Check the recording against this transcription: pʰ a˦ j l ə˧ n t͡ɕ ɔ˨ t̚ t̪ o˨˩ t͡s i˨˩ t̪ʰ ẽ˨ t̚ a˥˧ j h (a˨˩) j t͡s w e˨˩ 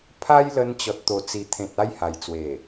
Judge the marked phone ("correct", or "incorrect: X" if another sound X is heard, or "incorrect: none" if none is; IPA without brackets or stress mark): correct